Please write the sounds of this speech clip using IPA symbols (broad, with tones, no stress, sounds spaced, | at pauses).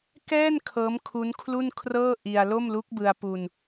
k ɛː˥˩ n kʰ ɤː˦˥ m kʰ u˦˥ n kʰ l u˥˩ n kʰ r ɤː˥˩ ʔ i˧ a̯ l o˥˩ m l u˦˥ k̚ b ɯ˧ a̯ p u˧ n